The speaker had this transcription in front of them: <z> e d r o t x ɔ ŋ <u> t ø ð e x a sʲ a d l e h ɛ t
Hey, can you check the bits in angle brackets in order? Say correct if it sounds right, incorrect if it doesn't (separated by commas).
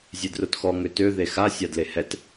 incorrect, incorrect